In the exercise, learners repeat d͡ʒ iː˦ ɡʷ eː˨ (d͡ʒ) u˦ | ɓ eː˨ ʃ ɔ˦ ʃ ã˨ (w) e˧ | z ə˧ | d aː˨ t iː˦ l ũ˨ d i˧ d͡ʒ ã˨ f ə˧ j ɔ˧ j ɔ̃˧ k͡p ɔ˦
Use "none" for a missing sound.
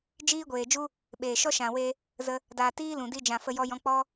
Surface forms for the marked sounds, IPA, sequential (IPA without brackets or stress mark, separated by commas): d͡ʒ, w